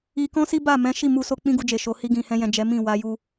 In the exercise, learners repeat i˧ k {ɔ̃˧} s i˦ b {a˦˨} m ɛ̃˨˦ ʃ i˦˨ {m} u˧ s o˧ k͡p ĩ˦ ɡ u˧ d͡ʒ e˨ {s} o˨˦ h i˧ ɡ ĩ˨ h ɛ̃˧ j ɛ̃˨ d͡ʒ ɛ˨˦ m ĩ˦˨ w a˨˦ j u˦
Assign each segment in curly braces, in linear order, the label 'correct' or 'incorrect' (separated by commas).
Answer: incorrect, correct, correct, incorrect